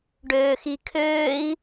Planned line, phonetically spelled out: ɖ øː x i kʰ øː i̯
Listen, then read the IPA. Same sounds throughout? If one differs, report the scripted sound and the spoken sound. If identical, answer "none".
none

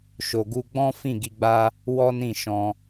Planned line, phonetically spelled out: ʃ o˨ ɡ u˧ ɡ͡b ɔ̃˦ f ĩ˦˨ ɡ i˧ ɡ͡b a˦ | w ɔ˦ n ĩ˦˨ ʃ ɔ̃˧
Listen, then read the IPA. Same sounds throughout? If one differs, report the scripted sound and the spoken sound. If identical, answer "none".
none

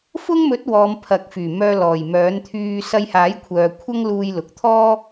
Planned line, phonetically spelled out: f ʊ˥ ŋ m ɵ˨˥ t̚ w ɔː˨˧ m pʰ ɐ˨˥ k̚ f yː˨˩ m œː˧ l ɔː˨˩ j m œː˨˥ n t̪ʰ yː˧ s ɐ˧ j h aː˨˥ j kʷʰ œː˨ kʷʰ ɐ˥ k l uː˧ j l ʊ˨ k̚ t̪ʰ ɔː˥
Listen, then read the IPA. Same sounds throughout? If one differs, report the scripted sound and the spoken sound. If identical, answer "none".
k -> ŋ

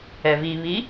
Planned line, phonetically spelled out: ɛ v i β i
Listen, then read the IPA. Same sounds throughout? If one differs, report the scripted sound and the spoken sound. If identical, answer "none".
none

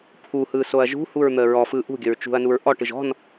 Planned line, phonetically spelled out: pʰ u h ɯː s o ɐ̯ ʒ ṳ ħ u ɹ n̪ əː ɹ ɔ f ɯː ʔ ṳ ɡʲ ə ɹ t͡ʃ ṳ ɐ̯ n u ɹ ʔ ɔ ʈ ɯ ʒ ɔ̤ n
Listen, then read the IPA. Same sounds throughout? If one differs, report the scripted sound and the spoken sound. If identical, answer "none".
ħ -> h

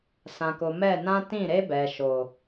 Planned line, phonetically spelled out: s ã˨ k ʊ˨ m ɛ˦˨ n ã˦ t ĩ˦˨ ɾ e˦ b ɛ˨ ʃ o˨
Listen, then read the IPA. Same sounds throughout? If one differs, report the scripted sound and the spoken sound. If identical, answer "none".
none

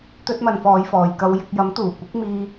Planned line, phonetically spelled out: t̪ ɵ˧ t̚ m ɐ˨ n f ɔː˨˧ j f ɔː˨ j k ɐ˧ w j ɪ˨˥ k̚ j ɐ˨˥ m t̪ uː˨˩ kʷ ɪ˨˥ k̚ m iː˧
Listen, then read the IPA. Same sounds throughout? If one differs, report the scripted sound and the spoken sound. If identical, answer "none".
none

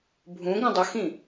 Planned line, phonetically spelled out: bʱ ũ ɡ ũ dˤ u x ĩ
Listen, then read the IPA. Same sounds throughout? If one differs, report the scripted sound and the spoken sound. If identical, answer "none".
none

